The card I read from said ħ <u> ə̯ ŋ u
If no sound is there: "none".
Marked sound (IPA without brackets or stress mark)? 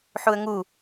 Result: u